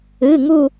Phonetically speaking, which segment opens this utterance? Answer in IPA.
ɨ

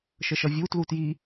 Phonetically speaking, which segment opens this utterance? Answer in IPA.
ʃ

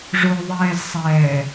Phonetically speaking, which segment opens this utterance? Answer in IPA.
ʐ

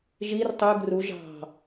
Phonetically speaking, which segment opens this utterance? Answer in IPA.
ʒ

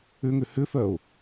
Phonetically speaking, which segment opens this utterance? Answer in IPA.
ʏ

